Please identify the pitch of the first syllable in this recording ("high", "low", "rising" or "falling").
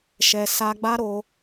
low